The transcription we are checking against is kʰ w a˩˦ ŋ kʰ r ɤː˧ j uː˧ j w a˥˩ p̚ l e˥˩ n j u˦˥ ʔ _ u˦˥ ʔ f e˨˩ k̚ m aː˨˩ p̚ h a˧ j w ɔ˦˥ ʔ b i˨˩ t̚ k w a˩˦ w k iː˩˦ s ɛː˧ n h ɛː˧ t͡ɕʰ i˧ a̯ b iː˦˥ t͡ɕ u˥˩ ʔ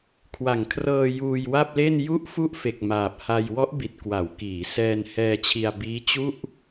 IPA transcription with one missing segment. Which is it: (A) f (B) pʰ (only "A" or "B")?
A